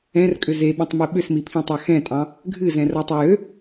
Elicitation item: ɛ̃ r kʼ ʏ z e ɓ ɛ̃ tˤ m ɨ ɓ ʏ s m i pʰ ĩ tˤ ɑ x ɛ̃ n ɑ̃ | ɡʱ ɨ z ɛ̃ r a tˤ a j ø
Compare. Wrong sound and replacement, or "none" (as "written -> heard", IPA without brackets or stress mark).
n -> tʼ